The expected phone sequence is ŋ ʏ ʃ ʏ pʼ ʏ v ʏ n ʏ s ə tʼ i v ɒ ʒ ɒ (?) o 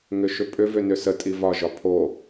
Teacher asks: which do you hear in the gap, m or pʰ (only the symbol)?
pʰ